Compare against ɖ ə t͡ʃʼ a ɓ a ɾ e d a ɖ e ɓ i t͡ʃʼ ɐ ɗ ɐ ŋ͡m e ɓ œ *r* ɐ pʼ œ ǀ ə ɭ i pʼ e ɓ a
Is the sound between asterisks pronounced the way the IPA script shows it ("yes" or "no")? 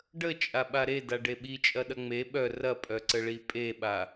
yes